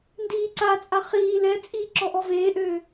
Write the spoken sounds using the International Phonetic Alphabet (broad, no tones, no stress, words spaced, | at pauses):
ndiːǀat͡sʼa χiː lɛt͡sʼiː ǁɔʔɔveːʔøː